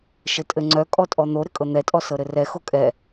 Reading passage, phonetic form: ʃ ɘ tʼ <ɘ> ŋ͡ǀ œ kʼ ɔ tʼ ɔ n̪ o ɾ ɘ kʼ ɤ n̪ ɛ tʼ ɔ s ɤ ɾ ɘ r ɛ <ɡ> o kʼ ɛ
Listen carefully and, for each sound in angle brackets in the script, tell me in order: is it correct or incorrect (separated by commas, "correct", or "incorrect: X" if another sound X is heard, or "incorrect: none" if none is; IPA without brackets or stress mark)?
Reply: correct, incorrect: x